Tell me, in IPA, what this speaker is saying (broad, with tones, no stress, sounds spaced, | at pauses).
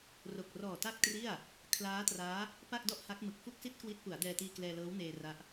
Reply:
r o˨˩ k̚ r ɔː˨˩ t a˥˩ k̚ t r i˥˩ a̯ | kʰ l aː˦˥ t r aː˦˥ | p a˥˩ k̚ d ɔ˥˩ ʔ h a˦˥ k̚ m ɯ˨˩ k̚ f u˥˩ k̚ s i˥˩ t̚ k w i˦˥ t̚ p u˩˦ a̯ d ɛː˧ t iː˧ k l ɛː˧ l ɤː˦˥ w n eː˧ r a˦˥ ʔ